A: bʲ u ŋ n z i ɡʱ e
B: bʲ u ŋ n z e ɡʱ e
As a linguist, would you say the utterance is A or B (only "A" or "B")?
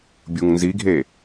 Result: A